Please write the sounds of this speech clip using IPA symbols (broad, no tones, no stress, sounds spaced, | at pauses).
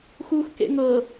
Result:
x uː x k ḛ ŋ ɤ